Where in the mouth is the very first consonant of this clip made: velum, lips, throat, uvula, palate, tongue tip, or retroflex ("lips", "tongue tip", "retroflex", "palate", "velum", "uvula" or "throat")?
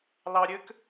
tongue tip